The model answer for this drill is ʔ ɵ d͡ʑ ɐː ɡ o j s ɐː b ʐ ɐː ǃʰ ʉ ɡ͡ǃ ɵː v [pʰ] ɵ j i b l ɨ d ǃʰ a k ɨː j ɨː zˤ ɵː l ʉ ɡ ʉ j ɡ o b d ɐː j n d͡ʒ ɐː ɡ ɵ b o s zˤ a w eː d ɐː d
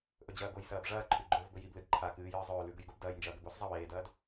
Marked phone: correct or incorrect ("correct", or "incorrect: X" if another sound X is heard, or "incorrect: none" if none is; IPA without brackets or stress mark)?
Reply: incorrect: b